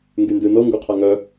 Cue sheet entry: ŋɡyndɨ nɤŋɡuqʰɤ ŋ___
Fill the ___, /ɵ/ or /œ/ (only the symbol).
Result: œ